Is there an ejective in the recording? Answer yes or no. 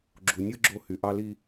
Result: no